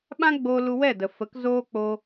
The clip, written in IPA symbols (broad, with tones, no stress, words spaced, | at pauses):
ɓã˦ ɡ͡boː˦ lu˧wɛ˦˨də˨fə˨˦k zoː˦k͡po˧